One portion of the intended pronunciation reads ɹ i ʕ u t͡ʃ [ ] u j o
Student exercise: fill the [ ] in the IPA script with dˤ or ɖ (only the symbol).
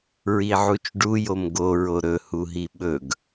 ɖ